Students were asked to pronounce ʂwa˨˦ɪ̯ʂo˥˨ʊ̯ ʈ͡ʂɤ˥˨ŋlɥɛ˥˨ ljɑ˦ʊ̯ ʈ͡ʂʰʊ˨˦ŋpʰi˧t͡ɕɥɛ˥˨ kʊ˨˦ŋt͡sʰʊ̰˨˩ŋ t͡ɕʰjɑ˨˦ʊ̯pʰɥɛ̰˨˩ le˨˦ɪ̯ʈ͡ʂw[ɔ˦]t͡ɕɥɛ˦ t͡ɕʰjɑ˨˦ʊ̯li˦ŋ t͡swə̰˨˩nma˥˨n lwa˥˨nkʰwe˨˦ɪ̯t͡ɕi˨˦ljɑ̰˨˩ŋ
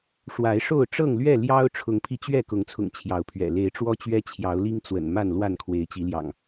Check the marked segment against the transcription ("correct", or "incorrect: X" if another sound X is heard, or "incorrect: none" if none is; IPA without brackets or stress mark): correct